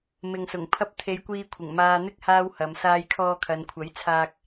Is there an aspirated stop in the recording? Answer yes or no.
yes